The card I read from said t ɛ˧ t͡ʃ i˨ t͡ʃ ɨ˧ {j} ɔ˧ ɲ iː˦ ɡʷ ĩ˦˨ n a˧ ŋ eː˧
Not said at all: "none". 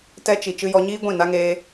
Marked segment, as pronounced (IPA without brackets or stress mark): j